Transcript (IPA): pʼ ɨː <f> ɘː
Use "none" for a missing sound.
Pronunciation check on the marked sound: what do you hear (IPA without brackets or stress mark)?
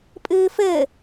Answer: f